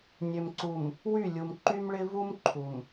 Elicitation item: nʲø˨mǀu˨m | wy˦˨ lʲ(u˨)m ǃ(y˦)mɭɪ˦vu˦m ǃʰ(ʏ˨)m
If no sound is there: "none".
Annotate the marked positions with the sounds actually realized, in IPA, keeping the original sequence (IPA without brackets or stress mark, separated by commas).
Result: u˨, y˦, u˨